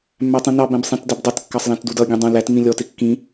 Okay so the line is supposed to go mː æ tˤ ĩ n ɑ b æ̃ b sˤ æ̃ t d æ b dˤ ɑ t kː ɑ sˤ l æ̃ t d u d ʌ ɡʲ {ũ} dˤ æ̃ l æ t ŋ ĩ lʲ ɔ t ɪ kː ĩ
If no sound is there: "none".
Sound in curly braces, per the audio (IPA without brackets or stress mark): ũ